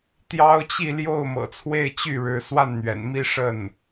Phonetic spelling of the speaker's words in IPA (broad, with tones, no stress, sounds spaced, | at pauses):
t̪ j ɑ˥ ʊ̯ t͡ɕ i˥˧ l j o˥˩ ʊ̯ m ɤ̰˨˩ t͡sʰ w e˥˧ ɪ̯ t͡ɕ y˥˩ ɻ ɻ̩˧˥ s w a˥˩ n n̪ ɥ ɛ̰˨˩ n m i˥˧ ʂ ə˥˩ n